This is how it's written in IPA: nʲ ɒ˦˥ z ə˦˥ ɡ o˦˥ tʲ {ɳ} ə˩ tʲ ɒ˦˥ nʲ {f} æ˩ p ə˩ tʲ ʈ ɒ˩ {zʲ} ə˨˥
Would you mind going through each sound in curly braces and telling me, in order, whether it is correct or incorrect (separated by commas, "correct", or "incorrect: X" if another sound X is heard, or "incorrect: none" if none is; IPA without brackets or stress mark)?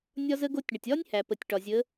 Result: correct, incorrect: h, correct